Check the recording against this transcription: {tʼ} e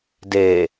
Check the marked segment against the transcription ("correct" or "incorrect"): incorrect